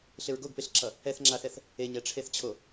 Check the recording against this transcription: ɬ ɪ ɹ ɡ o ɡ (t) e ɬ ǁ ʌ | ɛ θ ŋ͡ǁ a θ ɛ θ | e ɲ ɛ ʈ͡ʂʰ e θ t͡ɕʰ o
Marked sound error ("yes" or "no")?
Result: yes